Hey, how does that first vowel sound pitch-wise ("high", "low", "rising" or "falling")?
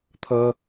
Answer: high